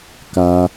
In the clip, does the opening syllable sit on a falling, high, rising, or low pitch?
high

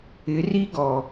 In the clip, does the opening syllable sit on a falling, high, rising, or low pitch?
rising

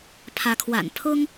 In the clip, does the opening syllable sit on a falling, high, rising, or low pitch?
rising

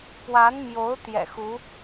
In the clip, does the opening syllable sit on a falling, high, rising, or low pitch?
rising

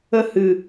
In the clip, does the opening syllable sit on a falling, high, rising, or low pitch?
falling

